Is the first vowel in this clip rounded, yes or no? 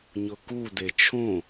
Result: yes